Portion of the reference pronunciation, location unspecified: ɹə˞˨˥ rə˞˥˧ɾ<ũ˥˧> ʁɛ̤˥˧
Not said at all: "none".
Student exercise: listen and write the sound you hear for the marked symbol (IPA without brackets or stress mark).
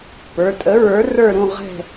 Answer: ũ˥˧